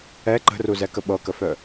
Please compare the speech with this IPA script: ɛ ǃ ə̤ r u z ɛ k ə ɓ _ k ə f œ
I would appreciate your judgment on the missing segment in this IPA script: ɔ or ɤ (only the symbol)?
ɤ